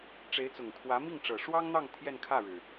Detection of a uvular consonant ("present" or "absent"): absent